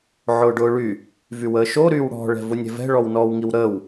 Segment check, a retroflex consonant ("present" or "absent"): present